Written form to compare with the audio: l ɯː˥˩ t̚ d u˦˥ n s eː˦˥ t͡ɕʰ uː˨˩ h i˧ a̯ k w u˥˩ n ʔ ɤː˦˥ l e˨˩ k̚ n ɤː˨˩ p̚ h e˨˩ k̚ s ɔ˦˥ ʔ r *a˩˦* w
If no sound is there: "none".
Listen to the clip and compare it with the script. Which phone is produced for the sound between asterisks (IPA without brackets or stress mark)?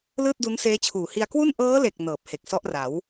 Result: a˩˦